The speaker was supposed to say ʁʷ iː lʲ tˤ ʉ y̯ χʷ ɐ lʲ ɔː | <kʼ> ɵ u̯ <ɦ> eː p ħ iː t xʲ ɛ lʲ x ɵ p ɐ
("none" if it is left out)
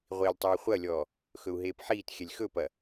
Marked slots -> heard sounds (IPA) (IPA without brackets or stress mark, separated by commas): x, ɦ